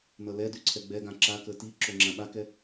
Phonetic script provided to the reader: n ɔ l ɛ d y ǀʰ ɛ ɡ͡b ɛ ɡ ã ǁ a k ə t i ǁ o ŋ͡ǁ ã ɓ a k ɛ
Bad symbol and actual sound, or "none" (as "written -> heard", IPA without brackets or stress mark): ɔ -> ʌ